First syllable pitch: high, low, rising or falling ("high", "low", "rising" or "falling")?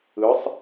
rising